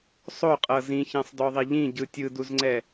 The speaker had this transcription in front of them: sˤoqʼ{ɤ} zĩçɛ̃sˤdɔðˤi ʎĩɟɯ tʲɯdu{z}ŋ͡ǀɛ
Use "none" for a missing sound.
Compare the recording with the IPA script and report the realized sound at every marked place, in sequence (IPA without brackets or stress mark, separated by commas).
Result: ɤ, z